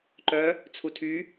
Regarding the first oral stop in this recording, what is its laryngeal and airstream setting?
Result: click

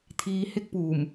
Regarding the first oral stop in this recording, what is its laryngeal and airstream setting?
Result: aspirated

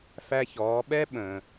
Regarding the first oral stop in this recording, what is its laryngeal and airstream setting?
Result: implosive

